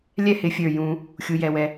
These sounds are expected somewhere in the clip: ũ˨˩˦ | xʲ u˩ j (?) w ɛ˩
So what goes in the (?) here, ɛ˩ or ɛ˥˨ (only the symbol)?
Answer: ɛ˩